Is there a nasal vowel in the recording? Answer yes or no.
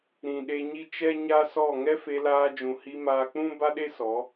yes